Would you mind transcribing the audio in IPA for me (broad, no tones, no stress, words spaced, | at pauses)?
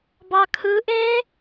bɑkʰɯʔe